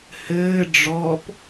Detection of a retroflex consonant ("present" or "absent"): present